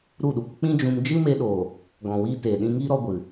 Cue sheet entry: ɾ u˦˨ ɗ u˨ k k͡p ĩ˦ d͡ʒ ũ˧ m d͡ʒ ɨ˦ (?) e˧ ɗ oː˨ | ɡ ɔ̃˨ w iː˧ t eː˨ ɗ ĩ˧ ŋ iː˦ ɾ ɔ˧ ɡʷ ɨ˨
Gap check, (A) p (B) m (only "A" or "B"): B